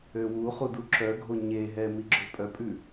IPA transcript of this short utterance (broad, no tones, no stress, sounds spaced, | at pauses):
ø w u χ u d u ǁ œ ɡʱ o ɲ e ɦ ɛ m i ɡ͡ǁ ø pʼ œ pʼ ʉ